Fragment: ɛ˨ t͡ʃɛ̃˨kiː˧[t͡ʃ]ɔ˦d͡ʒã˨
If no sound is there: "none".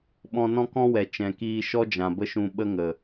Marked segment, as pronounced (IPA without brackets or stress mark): ʃ